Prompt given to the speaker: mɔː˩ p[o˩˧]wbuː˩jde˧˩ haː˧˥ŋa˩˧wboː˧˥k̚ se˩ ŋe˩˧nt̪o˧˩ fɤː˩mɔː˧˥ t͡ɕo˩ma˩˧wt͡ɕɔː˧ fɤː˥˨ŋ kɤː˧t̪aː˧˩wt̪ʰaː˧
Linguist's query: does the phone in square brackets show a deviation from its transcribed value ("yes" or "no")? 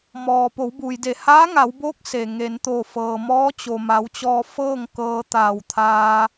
no